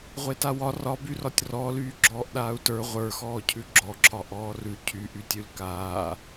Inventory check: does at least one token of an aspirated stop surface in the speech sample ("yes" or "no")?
yes